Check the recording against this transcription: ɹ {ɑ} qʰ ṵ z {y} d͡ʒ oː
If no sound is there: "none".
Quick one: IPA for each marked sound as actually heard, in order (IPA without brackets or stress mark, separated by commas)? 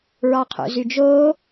ɑ, y